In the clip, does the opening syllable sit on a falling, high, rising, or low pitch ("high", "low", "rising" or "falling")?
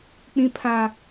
high